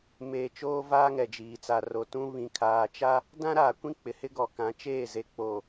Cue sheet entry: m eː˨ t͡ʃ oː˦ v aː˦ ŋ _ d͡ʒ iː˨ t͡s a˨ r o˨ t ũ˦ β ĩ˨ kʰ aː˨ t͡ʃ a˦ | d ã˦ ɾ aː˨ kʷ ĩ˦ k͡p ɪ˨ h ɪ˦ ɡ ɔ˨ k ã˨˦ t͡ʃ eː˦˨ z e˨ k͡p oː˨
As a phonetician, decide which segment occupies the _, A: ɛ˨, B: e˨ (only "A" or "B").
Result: A